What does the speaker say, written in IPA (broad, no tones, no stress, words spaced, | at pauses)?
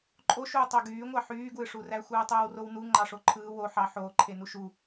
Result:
ǃʼoʃuː tˤoɡyːŋʷɑ ħyːɡwɯʂuræ xʷɯːtˤɯːwrownu ŋ͡ǃɑʂoǃʰɯː wo ħɑ ħoːǃʰe nuʃu